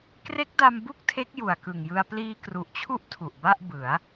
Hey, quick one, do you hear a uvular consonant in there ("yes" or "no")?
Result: no